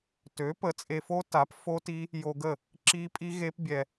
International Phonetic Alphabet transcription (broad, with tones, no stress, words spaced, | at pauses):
tø˩˥ pə˩˥t͡sʼe˧fo˦˥ta˩˥p fo˦˥ti˦˥ | jo˧ɡə˥˩ | ǁi˦˥pʼi˦˥ɣe˦˥pbʲɛ˧